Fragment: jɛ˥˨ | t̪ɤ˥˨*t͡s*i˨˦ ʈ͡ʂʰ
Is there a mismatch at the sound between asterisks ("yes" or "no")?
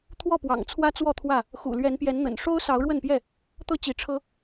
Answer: yes